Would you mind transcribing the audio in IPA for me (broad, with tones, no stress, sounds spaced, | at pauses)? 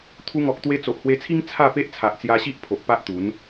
t̪ʰ u˧ ŋ ɔ˨ k̚ t̪ w e˧ t͡s o˨ ʔ h w e˧ t͡sʰ i˦ ŋ t͡sʰ a˥˧ p e˦ ʔ t͡sʰ a˨ ʔ t͡s j a˧ ɕ i˦ ʔ pʰ o˨ ʔ p a˦ ʔ t̪ u˨˦ n